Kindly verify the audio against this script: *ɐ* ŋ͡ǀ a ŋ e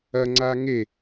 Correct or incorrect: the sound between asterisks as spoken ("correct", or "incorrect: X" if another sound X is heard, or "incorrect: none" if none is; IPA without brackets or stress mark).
correct